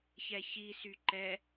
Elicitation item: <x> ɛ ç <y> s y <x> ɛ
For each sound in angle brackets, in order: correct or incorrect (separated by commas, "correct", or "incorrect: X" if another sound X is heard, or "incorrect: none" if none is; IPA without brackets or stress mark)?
incorrect: ç, incorrect: i, incorrect: ǃ